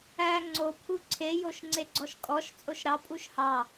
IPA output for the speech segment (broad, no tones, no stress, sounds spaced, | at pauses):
æ ŋ͡ǀ o pʰ u ǀʰ e j o ʃ ŋ͡ǀ e ɡ͡ǀ ɔ ʃ kʼ ɔ ʃ t͡sʼ o ʃ ɾ ɑ pʼ u ʃ h ɑ